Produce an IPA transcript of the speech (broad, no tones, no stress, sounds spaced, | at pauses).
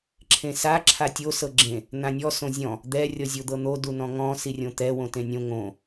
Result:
ǁʰ ẽ s a ǁʰ a tʲ o s ɤ ɡ͡ǁ ẽ | n̪ ã nʲ ɔ s õ zʲ ɔ̃ | d̪ ɛ rʲ ɔ zʲ o d̪ ɤ n̪ o d u n ɔ̃ ŋ ɔ̃ s i rʲ õ t̪ ɛ w õ t ẽ nʲ õ ŋ õ